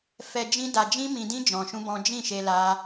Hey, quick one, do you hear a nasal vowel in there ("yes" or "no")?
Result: yes